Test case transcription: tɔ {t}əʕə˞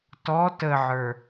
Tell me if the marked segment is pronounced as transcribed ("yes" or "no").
yes